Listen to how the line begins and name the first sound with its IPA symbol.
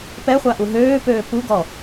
p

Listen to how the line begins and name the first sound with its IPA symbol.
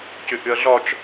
c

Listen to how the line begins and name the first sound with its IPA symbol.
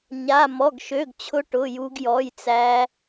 ɲ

